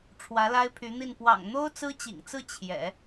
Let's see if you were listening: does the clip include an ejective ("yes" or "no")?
no